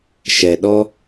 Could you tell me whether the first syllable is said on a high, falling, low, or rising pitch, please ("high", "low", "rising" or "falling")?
low